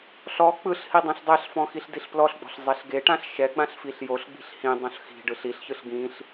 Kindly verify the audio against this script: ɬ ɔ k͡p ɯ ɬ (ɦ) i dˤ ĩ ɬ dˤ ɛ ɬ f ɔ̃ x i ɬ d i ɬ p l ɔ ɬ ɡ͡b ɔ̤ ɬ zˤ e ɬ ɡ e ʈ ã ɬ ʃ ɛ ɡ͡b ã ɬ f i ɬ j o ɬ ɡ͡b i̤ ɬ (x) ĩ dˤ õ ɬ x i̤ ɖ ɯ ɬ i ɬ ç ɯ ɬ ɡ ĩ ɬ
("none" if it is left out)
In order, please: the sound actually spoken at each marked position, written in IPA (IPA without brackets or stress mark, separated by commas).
h, h